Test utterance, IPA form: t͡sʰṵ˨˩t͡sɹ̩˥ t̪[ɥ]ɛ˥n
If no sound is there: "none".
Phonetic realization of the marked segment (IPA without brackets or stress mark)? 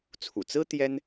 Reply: j